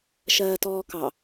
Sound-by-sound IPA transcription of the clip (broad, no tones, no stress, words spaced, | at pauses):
ʃɜːtɔːkɑ